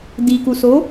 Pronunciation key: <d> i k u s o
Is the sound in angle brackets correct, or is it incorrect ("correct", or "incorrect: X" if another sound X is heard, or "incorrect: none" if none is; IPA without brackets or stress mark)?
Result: correct